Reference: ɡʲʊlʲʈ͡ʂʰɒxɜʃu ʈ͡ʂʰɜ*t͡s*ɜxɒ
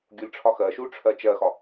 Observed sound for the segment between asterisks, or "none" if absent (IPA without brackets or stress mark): t͡ʃ